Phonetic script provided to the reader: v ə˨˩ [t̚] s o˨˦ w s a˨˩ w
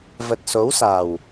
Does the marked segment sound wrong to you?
no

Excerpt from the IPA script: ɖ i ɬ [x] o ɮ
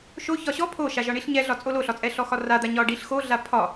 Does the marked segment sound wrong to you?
no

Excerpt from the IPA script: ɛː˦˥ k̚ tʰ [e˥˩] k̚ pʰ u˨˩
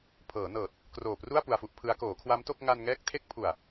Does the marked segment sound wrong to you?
yes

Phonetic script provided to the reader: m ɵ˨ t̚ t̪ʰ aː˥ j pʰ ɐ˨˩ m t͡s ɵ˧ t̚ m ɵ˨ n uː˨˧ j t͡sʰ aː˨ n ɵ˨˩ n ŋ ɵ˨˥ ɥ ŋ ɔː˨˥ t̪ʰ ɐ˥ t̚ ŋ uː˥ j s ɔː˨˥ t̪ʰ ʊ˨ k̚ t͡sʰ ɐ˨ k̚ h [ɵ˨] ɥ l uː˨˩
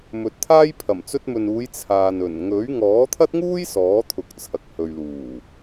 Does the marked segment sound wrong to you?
no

